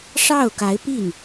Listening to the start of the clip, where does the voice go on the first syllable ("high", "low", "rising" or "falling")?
falling